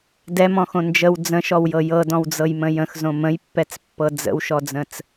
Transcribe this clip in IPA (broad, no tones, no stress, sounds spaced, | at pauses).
d ɛ m ɔ̃ x õ n d͡ʒ ə w d͡z ə̃ ʃ ɔ w j ɤ j ɤ d ɔ̃ w d͡z ɤ j m ə̃ j ə̃ x z õ m ə̃ j pː ɛ t͡s pː ɤ d͡z ə̰ w ʃ ɔ d͡z ə̃ t͡s